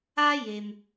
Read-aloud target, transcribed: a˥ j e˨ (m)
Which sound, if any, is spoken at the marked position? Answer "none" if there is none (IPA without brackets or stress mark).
m